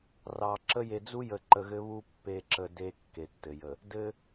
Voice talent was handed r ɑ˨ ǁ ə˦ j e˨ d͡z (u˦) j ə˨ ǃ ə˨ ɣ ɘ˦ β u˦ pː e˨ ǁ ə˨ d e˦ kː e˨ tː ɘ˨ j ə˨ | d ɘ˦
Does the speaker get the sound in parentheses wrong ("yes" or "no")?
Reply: no